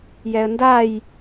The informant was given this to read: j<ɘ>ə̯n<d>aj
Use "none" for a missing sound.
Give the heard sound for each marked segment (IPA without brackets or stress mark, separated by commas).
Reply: ɛ, d